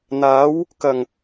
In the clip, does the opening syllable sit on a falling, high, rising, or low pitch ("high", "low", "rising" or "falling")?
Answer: rising